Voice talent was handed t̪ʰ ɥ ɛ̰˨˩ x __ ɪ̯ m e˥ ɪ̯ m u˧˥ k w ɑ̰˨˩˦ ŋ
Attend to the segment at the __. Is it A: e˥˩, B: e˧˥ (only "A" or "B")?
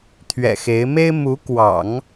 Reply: B